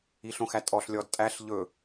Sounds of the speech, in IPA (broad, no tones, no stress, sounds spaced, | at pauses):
i ɬ õ x æ tʼ ɔ ɬ lʲ ɔ d tʼ æ ɬ ʎ ɵ